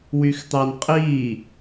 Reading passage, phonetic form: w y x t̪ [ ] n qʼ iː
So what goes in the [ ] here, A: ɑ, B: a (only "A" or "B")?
A